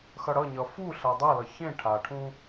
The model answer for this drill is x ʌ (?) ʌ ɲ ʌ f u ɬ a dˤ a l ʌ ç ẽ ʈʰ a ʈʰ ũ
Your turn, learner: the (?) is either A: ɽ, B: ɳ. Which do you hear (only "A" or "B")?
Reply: A